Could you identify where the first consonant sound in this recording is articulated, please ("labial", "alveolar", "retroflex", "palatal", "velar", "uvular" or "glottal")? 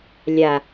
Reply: alveolar